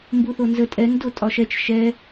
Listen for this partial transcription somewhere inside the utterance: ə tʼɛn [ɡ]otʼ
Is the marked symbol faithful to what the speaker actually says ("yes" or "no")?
no